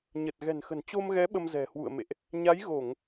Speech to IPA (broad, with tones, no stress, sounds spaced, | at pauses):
ɲ ə˨˩ t̚ ɣ ɛ̤˨˩ n x ə̤˨˩ n t͡ɕ o˧ m ɣ ɛ˨˦ ɓ ə˧ m z ɛ̤˨˩ h w ṵ˧˨ ə̯ m ḛ˧˨ ʔ | ɲ a˨˦ j ɣ o˧˩˨ ŋ